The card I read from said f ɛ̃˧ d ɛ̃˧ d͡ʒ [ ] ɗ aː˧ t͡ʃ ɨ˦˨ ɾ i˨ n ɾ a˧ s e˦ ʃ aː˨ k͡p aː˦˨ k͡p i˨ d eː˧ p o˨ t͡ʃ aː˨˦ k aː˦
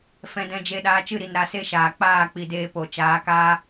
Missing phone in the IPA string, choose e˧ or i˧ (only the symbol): e˧